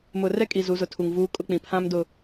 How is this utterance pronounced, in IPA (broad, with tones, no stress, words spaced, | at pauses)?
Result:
mʊ˨rɛ˦kʼi˨ zu˨˦zʊ˨ tʰu˨ŋvuː˦kʼʊ˦k͡pĩ˨ pʰã˦mdʊ˨